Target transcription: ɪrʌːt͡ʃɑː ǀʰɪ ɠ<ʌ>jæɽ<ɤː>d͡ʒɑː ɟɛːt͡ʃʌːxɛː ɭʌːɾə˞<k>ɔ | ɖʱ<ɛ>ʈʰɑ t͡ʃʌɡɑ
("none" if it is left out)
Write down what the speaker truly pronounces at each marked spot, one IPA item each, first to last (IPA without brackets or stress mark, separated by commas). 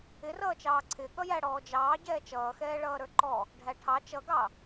ʌ, ɔː, ǃ, æ